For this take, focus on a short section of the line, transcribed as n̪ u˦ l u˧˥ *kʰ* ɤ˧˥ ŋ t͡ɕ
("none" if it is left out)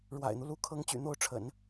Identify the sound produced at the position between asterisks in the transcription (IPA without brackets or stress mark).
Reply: kʰ